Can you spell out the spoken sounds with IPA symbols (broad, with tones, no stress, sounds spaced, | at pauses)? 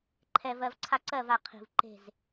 ǃʰ ɛ˨ v ɜ˨ v ǀʰ a˦ ǀ ɜ˦˨ v a˨ qʰ i̤˨ v ǃ e̤˦˨ z